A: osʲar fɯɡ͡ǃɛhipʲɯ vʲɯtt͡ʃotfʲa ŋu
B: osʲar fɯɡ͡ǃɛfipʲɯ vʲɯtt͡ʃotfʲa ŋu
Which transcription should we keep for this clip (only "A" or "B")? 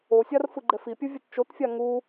B